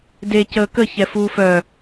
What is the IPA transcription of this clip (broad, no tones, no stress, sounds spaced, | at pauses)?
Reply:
d e c əː k ə ç ɛ f uː f œ